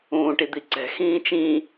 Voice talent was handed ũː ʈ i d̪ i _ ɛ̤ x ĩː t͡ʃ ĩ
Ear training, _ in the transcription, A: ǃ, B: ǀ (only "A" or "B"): B